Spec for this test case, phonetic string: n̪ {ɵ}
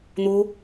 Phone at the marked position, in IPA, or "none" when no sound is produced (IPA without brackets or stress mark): o